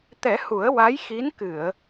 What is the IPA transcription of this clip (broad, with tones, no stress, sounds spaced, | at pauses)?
t̪ ɛ˨˩˦ h u˨˩˦ ə̯ w a˧˥ j x i˧˥ n k ɨ˨˩˨ ə̯